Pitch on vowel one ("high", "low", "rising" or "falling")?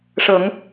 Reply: low